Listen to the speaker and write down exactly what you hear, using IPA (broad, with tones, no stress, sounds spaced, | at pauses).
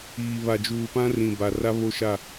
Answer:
iː˨ β a˨ d͡ʒ uː˨ p ã˦ r ĩ˨ b a˨ r a˦ β o˦ ʃ a˦˨